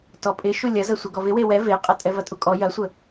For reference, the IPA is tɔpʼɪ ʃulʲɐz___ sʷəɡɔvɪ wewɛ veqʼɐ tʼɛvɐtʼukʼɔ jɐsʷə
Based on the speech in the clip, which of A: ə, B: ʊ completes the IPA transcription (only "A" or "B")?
A